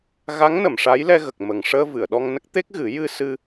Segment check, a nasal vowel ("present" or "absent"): absent